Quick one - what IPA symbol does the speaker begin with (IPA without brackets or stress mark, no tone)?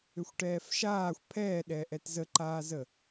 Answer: ʏ